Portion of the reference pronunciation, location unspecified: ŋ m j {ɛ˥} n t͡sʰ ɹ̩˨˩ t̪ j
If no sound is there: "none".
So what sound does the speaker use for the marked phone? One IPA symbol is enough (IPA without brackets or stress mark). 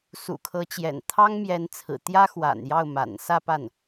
ɛ˧˥